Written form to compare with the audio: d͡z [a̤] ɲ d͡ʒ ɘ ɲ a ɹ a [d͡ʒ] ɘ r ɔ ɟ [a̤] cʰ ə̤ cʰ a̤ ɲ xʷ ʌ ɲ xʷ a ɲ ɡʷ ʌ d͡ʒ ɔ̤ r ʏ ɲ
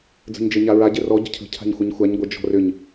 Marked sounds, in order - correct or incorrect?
incorrect: ə̤, incorrect: ɟ, incorrect: ə̤

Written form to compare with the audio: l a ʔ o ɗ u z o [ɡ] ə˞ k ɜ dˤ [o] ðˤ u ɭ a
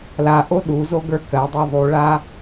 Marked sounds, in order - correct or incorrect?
correct, correct

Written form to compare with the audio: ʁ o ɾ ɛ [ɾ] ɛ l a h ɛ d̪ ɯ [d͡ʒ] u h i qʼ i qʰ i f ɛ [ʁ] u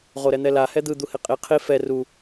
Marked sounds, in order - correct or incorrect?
incorrect: n̪, incorrect: d̪, incorrect: r

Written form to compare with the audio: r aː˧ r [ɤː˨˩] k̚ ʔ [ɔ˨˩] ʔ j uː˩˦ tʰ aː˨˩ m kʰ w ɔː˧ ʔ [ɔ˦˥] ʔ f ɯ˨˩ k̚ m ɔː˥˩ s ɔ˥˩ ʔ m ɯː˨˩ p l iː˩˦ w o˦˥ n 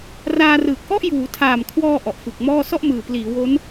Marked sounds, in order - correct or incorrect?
incorrect: ɯː˨˩, incorrect: ɔ˥˩, incorrect: ɔ˨˩

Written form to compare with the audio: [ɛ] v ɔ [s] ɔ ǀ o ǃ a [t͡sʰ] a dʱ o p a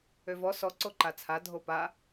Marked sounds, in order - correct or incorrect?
incorrect: ø, correct, correct

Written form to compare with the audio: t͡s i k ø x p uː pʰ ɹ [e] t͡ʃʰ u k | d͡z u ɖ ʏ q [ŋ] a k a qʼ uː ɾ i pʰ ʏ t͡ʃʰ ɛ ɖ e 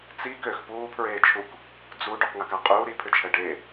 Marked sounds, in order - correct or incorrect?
incorrect: eː, correct

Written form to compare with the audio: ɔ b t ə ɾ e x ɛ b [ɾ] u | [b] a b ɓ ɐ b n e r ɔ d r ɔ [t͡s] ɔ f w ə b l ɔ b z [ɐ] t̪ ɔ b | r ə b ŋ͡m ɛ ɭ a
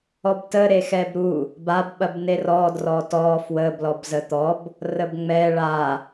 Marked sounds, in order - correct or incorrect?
correct, correct, incorrect: t, incorrect: ə

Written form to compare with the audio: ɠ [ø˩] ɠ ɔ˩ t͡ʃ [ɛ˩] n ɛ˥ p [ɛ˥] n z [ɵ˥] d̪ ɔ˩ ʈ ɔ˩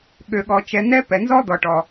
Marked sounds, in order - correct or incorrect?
correct, correct, incorrect: ɛ˩, incorrect: ɔ˥

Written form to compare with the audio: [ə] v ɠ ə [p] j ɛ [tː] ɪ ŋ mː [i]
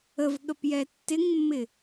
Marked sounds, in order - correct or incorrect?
correct, correct, correct, incorrect: ɪ

